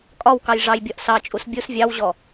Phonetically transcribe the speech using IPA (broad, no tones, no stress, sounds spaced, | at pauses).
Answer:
kʼ ɒ w k ɑ j ʐ ɑ j bʲ ɒ ʔ s ɑ t͡ʃʼ u s bʲ u s vʲ ɑ w ʑ ɔ